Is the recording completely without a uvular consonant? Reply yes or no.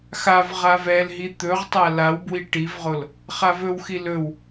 no